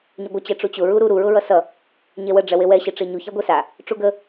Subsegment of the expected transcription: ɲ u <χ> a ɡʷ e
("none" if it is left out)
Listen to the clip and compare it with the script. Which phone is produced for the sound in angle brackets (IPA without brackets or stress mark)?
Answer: ç